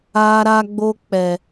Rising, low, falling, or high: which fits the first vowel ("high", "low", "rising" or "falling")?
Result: high